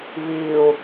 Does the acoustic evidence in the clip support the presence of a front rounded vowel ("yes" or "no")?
no